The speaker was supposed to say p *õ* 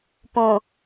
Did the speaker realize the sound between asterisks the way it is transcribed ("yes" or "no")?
yes